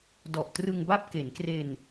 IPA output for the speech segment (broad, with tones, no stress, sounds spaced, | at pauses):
d ɔ˨˩ ʔ t r ɯ˧ ŋ b a˥˩ p̚ k e˩˦ n k r e˧ n